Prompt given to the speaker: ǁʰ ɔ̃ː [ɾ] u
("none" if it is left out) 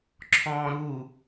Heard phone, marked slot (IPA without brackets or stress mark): ɾ